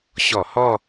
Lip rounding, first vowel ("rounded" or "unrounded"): rounded